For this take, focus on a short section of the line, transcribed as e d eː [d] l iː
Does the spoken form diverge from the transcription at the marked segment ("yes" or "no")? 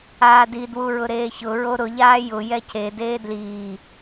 no